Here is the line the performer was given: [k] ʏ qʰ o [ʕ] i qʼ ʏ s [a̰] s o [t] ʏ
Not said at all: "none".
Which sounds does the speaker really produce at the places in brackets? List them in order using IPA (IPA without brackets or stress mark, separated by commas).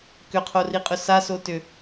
k, r, a, t